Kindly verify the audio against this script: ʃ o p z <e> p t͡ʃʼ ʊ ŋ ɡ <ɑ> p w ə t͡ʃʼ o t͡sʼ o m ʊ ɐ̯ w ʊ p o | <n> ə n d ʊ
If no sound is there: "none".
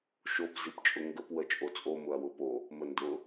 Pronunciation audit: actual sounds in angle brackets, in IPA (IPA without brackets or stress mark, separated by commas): i, ə, m